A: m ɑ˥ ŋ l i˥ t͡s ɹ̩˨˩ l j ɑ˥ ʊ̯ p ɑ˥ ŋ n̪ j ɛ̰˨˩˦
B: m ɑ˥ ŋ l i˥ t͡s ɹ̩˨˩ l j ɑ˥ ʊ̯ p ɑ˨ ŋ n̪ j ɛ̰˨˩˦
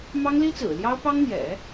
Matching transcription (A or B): A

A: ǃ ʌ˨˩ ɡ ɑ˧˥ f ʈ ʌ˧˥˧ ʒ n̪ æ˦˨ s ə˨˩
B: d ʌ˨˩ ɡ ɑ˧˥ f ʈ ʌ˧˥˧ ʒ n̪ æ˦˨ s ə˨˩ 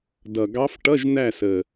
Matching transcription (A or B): B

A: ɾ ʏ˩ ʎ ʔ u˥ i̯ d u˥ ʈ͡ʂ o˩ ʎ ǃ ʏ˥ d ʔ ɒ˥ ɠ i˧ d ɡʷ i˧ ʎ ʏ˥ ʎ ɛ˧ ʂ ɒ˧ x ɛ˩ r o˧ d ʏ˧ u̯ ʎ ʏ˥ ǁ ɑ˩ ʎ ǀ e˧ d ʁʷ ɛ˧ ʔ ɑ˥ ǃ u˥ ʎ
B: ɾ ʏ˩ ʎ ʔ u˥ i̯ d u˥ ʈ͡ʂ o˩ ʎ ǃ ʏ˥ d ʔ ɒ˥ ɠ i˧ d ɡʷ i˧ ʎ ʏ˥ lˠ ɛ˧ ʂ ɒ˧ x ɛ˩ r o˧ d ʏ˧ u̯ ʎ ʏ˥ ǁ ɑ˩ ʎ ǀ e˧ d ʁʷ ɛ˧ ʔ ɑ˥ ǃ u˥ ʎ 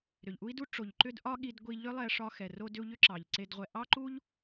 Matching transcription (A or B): B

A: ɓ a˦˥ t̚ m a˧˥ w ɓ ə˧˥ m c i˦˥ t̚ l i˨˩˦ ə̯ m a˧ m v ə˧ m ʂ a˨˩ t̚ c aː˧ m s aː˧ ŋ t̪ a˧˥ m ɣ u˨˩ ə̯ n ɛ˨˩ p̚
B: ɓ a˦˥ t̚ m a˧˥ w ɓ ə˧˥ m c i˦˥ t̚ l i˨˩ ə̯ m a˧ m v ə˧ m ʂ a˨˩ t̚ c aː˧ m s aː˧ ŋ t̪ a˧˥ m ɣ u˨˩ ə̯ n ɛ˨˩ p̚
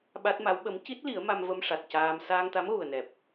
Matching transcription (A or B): A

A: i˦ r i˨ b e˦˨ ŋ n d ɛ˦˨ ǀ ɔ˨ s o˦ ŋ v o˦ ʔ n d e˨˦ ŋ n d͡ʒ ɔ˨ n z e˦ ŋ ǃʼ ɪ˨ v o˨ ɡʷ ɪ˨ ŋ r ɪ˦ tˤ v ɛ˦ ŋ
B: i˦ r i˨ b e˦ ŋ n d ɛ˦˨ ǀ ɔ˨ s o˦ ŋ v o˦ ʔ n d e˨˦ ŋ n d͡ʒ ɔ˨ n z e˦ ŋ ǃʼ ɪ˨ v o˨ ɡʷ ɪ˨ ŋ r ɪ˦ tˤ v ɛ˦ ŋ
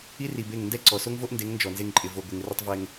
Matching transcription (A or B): A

